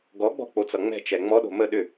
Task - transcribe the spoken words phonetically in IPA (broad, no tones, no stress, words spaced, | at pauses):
ɡɔɡ͡bɔ̤k͡pot͡sʌ ŋ͡mɛ̤t͡ʃɛ ŋ͡mɔɗo̤ mə ɗʏ